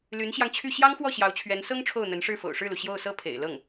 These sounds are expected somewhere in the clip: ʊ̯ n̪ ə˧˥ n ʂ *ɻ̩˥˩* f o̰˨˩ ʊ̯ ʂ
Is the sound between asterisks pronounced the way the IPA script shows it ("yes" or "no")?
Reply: yes